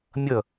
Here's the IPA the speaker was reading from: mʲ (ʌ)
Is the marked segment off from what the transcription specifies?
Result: no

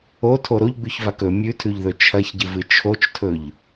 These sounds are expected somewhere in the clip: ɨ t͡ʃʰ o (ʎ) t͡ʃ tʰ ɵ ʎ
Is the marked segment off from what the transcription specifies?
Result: yes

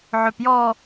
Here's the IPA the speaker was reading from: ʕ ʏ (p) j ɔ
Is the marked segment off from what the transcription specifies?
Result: no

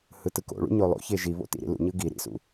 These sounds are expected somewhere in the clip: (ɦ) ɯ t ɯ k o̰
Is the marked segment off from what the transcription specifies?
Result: yes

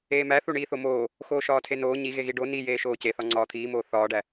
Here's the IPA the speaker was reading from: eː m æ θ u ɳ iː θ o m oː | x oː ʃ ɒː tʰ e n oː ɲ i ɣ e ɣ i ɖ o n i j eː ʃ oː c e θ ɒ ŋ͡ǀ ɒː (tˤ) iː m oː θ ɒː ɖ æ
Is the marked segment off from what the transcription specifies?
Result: yes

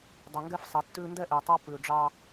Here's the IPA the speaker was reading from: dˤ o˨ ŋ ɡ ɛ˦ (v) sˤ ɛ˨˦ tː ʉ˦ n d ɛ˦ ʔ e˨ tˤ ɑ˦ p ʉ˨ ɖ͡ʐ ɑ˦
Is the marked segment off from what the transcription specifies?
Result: yes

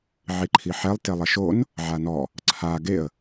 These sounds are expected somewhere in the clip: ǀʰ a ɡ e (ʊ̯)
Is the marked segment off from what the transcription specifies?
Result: yes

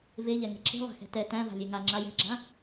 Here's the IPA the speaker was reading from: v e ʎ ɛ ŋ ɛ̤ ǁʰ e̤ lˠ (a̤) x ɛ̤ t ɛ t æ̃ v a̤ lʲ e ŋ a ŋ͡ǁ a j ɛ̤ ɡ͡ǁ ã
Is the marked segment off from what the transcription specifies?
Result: no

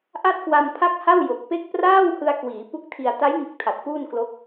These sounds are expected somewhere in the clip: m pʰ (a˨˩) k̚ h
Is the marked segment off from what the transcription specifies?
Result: yes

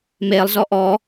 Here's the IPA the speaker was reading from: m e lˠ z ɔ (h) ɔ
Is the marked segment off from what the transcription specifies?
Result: yes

